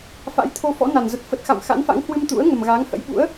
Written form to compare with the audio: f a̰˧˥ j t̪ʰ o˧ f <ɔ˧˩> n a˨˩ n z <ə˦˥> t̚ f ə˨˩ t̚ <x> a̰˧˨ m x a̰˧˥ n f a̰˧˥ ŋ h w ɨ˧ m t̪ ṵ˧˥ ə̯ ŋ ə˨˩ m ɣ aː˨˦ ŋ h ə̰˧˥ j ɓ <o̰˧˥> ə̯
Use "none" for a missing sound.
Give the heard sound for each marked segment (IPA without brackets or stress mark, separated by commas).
ɔ̰˧˥, ə˨˩, x, ṵ˧˥